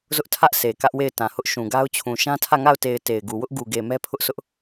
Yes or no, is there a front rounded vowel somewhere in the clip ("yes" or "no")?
no